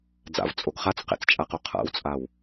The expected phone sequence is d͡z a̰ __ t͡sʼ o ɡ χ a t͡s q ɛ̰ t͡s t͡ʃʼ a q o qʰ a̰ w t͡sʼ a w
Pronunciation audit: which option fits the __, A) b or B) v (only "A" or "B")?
B